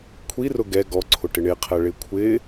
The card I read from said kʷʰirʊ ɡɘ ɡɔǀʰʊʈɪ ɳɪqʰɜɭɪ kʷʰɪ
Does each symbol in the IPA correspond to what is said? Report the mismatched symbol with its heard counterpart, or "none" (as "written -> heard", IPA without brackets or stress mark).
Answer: ɘ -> ɛ